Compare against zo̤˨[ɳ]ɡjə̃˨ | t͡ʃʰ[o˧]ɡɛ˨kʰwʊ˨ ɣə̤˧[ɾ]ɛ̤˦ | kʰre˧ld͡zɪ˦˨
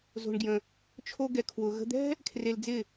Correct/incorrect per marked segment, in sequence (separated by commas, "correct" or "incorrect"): correct, correct, incorrect